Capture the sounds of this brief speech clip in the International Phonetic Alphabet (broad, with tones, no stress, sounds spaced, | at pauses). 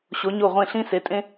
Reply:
ɕ o˨˦ ɲ o˦˨ ʁʷ ẽ˦˨ ɬ ĩ˦ s e˨˦ tʼ ẽ˦